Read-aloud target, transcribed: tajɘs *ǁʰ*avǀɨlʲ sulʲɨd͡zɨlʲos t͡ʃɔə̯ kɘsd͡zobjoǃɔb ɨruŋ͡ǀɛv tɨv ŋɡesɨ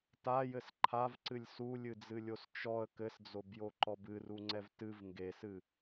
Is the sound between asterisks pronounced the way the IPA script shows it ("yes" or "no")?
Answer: no